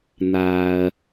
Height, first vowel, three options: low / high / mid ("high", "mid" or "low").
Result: low